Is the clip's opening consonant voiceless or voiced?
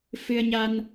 voiceless